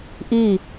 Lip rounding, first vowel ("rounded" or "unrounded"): unrounded